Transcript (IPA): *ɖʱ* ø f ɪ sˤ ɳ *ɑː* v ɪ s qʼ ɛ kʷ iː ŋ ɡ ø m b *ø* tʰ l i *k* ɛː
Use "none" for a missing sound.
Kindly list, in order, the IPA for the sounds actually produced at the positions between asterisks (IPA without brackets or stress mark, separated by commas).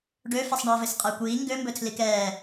ɖ, ʌː, ɵ, k